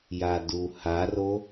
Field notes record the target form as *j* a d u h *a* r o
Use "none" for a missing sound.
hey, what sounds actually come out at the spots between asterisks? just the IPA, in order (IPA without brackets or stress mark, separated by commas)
j, a